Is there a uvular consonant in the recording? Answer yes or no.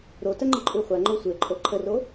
yes